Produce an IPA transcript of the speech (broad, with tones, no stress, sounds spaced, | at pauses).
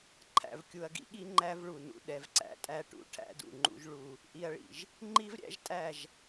ǃʰ æ̰˨ v kʲ u˨ ɐ̯ ɡ ḭ˦ ɠ i˦ ŋ͡ǃ æ˦ v ɭ u˨ n ṵ˦ ɗ ɛ˨ v ǀ æ̰˦ tʼ æ˦ ʈ ṵ˨ ʈʰ æ̰˦ d ṵ˨ ŋ͡ǃ ṵ˦ ʒ ɭ u˦ | ʔ i˨ ɐ̯ ɭ ḭ˨ ʒ | ŋ͡ǃ i˦ v ɾʲ æ̰˦ ʒ tʼ æ˦˨ ʒ